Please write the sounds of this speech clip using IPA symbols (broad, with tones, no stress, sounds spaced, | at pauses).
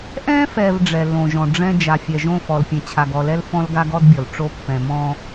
ʔ ɛ̃˦ f ɛ˨ v ɖ͡ʐ ɛ˨ lː õ˨ ʒ ɔ̃˨ ɖ͡ʐ ɛ̃˦ d͡ʒ a˨ fʲ ɛ˨ ʒ õ˦˨ f ɔ˨ l pʲ ɛ̃˨ t͡ɕʰ a˨ ɡ ɔ˨ l ɛ˦ l f ɔ̃˦ l ɡ a˦ ɡ ɔ˦ d bʲ ɔ˨ l ʈ͡ʂ o˦ pː ɛ̃˨ m ɔ̃˦